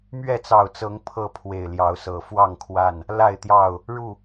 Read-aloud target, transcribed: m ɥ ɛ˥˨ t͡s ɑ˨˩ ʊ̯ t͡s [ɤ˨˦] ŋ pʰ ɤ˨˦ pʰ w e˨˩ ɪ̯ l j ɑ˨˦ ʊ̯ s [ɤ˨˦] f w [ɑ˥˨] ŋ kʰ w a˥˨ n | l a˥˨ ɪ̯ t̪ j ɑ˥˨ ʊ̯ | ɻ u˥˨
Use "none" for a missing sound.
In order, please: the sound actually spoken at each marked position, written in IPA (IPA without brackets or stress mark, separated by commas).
ɤ˨˦, ɤ˨˩, ɑ˥˨